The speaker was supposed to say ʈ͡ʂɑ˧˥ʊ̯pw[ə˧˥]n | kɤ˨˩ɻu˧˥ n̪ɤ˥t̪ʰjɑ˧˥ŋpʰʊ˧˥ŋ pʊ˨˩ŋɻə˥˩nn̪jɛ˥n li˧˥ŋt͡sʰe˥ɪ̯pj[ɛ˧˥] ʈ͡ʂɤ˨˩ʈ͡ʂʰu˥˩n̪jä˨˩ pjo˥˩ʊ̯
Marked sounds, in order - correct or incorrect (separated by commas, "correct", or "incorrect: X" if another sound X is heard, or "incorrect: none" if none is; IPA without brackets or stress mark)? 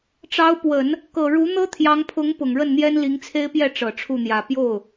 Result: incorrect: ə˨˩˦, incorrect: ɛ˥˩